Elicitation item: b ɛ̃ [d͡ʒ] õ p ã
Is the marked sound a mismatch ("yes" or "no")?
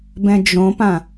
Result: no